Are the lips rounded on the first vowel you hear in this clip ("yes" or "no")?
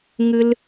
no